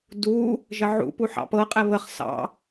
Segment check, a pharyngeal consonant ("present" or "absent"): present